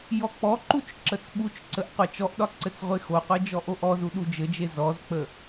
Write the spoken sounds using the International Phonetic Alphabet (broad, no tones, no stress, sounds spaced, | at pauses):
j ɔ k͡p ɔ ǃ u t͡ʃ ǁ ə t͡s ɓ u t͡ʃ ǀ ə ʔ qʷ e t͡ʃ ɔ ʔ ɗ ɒ ǀ ɘ t͡s ʁʷ e x o qʷ e d͡ʒ ɔ ʔ o ʔ ɔ z u ɗ u d͡ʒ ɘ d͡ʒ e z ɔ z k͡p ə